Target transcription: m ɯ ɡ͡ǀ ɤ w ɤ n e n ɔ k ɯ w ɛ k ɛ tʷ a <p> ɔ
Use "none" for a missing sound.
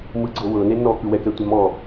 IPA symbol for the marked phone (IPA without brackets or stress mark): m